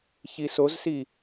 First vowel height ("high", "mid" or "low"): high